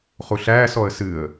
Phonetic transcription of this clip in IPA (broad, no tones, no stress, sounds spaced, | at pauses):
χ u ɬ æː s ɔ ə̯ s ɨ ə̯